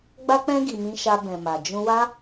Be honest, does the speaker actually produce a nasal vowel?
yes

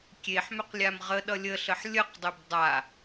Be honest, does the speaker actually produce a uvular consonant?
yes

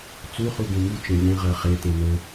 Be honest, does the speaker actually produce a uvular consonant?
yes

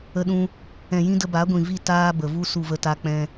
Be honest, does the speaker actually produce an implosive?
yes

